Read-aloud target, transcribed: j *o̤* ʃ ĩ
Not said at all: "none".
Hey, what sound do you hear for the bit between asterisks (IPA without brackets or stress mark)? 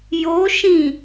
o